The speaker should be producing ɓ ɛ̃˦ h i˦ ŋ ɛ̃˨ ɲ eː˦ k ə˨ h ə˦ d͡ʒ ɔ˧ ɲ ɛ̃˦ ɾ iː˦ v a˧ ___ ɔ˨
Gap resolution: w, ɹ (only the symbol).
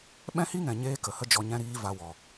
w